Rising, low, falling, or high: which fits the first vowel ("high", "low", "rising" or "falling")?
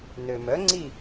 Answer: low